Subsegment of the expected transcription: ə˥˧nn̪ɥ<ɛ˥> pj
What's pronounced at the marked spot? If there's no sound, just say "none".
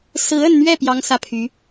ɛ˥˩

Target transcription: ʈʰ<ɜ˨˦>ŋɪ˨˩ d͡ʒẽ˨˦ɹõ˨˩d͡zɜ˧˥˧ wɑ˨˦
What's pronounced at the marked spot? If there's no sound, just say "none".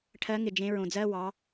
ɜ˨˦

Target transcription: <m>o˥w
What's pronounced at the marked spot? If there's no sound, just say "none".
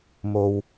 m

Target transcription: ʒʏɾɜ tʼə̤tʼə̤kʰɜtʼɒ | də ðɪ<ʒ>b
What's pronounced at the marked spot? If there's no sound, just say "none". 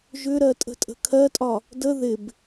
none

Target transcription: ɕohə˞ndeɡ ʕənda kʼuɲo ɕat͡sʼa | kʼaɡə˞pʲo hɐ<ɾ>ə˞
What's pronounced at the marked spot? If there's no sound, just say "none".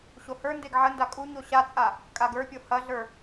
ɮ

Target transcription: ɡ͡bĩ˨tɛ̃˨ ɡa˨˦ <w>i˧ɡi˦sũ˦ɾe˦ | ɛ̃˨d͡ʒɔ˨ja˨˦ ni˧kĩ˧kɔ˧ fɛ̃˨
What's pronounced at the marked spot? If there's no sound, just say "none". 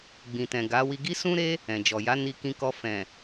w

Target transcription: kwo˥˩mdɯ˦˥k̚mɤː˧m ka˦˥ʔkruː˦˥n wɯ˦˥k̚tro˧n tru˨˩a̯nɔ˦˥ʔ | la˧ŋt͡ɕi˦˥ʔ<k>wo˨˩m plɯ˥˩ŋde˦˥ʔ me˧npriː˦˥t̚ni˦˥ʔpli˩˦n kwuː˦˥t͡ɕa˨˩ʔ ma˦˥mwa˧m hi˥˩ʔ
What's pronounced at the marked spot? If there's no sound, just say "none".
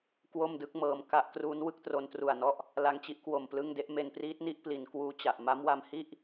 k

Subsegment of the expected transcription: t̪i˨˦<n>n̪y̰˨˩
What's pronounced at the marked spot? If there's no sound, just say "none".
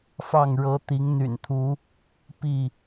ŋ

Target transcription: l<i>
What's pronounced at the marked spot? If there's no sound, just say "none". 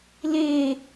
e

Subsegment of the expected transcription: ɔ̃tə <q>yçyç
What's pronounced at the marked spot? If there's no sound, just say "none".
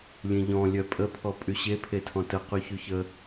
q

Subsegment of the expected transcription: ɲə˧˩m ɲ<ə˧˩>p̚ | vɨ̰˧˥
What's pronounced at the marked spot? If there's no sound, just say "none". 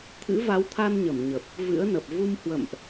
ə˨˩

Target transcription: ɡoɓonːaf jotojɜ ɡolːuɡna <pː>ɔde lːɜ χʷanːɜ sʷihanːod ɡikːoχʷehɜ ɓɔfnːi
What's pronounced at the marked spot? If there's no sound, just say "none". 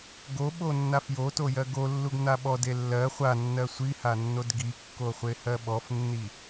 ɓ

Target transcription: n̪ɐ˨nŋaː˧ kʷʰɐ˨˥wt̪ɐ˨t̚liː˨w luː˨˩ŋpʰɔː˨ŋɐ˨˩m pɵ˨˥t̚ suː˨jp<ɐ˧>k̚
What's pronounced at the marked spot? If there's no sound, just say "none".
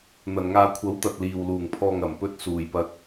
ɐ˧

